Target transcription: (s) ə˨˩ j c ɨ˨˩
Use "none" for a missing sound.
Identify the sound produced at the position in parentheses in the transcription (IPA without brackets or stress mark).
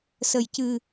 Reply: s